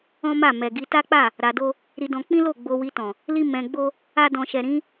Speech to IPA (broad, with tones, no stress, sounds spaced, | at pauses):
ɔ̃˦ m a˦˨ m ɛ˨ ɡ i˧ t a˦ k͡p a˦˨ | ɾ a˧ d o˦ | ɾ i˧ d ɔ̃˧ k͡p ĩ˦ l o˦˨ ɡ͡b o˧ w i˧ t ɔ̃˨ | l i˦ m ɛ̃˧ ɡ͡b o˦ | a˦ d ɔ̃˧ ʃ ɛ˨ ɾ ĩ˨˦